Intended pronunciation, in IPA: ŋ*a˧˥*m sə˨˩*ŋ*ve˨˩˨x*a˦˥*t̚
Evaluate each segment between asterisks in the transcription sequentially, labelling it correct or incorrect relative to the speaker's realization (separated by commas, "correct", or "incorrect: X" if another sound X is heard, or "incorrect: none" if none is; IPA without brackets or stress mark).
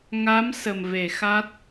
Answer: correct, incorrect: m, correct